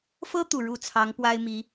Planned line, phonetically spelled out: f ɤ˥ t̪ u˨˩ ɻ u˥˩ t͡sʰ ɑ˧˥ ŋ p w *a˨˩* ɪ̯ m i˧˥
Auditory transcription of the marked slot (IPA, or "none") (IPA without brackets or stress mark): a˥